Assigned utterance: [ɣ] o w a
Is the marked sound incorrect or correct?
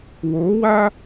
incorrect